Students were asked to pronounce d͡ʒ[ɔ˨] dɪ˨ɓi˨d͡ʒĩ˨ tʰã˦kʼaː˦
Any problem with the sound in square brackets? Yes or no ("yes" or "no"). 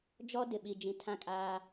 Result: yes